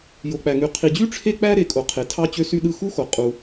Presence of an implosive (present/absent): present